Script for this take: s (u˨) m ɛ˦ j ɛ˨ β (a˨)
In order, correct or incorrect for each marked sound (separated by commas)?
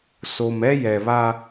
incorrect, incorrect